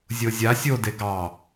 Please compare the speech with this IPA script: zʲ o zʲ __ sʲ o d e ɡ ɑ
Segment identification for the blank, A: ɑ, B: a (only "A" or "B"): B